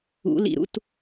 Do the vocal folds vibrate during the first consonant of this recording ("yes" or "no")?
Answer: yes